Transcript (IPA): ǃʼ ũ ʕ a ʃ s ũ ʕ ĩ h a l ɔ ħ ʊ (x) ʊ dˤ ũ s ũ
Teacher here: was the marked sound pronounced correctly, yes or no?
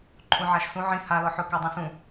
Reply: no